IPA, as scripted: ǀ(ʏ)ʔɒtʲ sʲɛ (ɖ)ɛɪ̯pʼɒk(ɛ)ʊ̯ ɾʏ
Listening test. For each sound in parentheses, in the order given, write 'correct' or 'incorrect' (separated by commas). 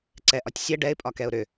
incorrect, correct, correct